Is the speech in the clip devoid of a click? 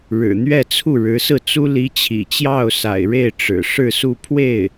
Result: yes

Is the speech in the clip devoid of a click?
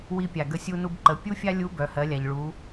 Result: no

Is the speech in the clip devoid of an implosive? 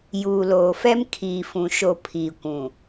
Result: yes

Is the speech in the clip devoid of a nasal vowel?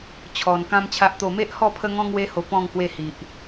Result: no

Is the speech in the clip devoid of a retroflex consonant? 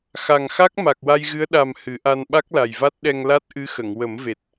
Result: yes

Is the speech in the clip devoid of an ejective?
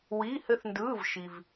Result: yes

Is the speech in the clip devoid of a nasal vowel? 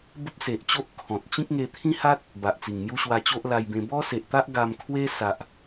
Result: no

